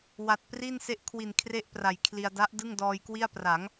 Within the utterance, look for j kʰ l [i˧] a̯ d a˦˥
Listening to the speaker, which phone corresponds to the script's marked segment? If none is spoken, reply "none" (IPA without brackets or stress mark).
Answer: i˧